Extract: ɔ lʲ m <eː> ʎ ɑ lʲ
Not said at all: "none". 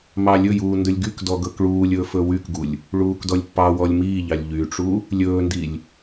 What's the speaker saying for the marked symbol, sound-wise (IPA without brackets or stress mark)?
iː